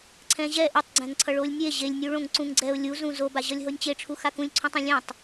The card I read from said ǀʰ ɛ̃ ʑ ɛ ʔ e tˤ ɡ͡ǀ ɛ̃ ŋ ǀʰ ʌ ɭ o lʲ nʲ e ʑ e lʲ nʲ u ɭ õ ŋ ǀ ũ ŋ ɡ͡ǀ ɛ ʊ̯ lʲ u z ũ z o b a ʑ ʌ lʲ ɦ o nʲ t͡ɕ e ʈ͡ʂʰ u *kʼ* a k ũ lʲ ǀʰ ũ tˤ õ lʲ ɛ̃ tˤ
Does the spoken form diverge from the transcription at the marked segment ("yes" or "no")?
yes